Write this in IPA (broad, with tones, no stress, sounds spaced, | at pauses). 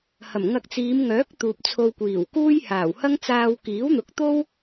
h ɐ˨˩ m ŋ ɐ˧ k̚ t͡s iː˨˧ m ŋ œː˨˥ k̚ t̪ uː˨ p̚ t͡sʰ o˧ w kʷ iː˨˩ w k uː˥ j h aː˨˩ w h ɐ˥ ŋ t͡s aː˧ w k iː˨˥ w n̪ ʊ˨˥ k̚ t̪ o˥ w